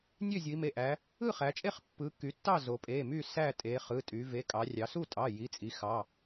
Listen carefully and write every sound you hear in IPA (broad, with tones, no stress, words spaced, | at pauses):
nʲø˥˨zʲu˩˧i̯me˩˧˩ʔæ˩˧ | ɯ˥˨χæ˩˧t͡ʃʼe˥˨χ pːɯ˩˧ ky˩˧tːɑ˥˨ zo˩˧pʼe˩˧˩my˥˨ sæ˥˨tʼe˩˧ χɯ˩˧˩tʼy˩˧ ve˩˧˩kʼɑ˩˧rʲɑ˩˧ su˥˨tʼɑ˩˧˩ ji˩˧˩t͡sʼi˩˧xɑ˩˧˩